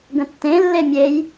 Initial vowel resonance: nasal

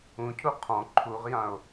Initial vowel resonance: nasal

